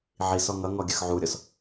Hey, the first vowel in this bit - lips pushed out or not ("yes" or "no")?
no